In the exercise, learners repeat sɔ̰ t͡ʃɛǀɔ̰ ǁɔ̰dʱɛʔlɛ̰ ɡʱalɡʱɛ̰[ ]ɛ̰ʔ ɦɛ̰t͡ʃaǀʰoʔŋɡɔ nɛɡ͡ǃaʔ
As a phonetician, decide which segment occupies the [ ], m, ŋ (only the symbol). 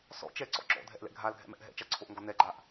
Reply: m